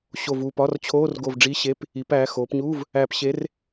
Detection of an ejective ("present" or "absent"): absent